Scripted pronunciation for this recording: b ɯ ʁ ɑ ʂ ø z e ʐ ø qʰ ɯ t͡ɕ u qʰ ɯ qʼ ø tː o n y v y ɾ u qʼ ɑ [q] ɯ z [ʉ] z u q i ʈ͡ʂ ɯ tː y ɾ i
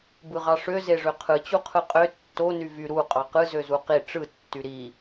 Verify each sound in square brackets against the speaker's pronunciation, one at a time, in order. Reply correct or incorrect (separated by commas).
correct, incorrect